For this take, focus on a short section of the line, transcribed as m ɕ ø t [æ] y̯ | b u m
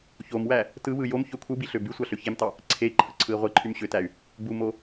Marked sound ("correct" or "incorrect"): correct